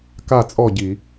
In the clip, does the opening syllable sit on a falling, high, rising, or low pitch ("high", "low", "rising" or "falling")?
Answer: falling